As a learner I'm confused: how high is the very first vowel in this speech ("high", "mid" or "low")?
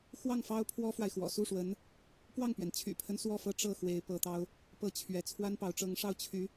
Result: low